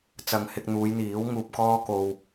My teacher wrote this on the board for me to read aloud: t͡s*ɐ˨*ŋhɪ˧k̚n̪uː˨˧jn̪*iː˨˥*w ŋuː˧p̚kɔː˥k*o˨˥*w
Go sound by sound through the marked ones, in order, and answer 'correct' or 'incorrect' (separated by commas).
correct, correct, incorrect